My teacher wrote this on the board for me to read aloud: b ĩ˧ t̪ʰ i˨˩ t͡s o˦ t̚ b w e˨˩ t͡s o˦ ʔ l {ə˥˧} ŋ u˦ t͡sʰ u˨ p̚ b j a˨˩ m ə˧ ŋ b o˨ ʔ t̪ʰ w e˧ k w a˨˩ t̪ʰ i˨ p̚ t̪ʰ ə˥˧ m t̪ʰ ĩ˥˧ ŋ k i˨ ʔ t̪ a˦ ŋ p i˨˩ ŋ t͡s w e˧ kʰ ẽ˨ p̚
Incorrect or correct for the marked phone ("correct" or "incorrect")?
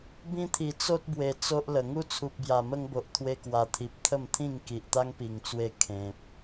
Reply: incorrect